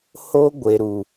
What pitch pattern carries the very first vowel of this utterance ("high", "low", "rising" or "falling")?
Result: high